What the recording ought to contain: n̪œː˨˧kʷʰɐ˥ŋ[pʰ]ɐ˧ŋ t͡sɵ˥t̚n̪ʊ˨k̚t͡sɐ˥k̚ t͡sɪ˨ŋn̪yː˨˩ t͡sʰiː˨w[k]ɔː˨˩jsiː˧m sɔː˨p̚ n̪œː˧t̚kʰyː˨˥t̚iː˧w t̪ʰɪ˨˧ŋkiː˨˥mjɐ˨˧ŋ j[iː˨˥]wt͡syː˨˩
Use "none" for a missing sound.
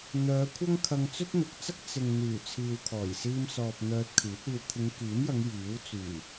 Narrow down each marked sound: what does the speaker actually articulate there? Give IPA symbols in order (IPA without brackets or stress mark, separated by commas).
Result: kʰ, kʰ, iː˨˥